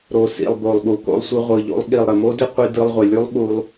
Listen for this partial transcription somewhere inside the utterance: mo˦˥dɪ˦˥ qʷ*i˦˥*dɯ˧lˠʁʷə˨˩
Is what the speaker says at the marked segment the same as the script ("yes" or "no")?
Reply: no